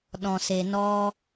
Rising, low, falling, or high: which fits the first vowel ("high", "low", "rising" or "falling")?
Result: low